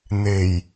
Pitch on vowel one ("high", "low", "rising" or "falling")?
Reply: low